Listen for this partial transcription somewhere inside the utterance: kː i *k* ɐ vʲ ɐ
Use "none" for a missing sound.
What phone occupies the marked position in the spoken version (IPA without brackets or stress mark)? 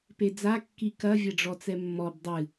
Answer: k